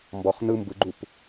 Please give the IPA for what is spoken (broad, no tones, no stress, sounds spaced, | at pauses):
m b ɔ χ n ɯ m b ɯ ɡ͡ǃ u p